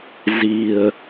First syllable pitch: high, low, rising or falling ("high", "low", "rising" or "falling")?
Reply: low